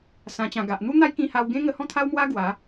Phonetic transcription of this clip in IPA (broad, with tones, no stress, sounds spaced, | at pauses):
s ã˨˩ t͡ɕ ã˨˩ ɡ a˨ ʔ n̪ u˦ n̪ a˦ j k ĩ˧ h a˧ w ɡ ẽ˦ ŋ ə˧ h ɔ̃˥˧ t̪ʰ a˦ w m w a˦ ɡ w a˨˦